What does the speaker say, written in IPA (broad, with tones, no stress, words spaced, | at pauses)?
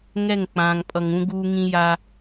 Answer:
ŋɛ˦˨ŋ k͡pãː˨ŋpʼʌ˨ŋũ˦ ɡuː˦ŋĩ˦ ja˦